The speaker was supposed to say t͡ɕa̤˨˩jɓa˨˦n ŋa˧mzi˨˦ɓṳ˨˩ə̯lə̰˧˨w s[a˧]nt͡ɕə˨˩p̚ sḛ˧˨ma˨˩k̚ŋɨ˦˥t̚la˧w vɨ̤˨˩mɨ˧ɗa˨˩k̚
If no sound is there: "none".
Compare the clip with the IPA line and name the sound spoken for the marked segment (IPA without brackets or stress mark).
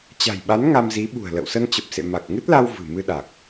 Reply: ə˧